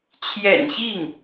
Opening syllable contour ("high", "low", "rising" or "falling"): low